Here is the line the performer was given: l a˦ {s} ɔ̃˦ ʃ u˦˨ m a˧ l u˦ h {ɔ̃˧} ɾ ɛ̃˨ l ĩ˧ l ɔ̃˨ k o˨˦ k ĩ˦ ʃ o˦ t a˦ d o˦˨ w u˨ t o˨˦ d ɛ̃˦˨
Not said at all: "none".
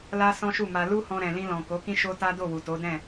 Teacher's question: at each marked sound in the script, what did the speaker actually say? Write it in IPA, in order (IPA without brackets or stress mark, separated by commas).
s, ɔ̃˧